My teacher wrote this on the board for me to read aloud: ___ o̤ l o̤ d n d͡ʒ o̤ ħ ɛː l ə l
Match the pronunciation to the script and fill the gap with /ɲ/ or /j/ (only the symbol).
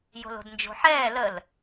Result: j